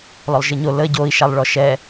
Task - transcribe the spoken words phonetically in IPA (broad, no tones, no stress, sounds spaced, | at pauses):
l ɔ lˠ ʒ ɨ ɲ o l ə ɟ o i̯ ʃ a lˠ ɭ ɔ ʃ ɛ